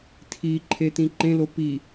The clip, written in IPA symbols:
tʰiǃʰetĩ ǃẽlo pi

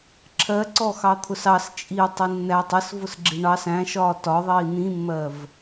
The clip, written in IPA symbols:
ǁʰɜǀɔ xɑt̪ʰʊsɑs t͡ʃʼi tˤinːætˤ əs vʊsɡ͡ǁiɳɑs æ̃ʃɒː tɒðˤiː n̪ĩmːɜv

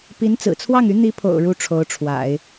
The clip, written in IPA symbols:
pi˧˥n t͡sɹ̩˨˩t͡sʰwɑ˥˩ŋy˧˥ n̪i˧˥pʰo̰˨˩ʊ̯ ɻu˥ʈ͡ʂʰo˧˥ʊ̯ʈ͡ʂʰwa̰˨˩˦ɪ̯

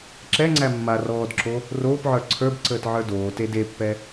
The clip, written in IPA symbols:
ǁɛŋ͡ǀæ mːa rɔːdǁo | roːpʕə˞ ǀʰə˞bǀəːtʕə˞ doːte depːɛ

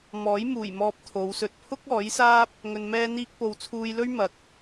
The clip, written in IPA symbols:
mɔː˨˥jmuː˨˩jmɔː˧p̚ t̪ʰo˨˧wsɵ˧t̚ pʰʊ˥k̚ɔː˨˥jsaː˥p̚ | ŋɵ˧nmɛː˥n̪iː˥k̚ po˨wt͡sʰuː˧jlɵ˥ɥ mɐ˨k̚

